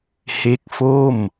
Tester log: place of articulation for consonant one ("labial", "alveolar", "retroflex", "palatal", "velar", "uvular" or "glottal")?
glottal